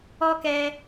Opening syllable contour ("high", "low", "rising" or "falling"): high